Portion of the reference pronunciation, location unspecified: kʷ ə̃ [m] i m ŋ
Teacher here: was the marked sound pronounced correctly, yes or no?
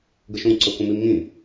yes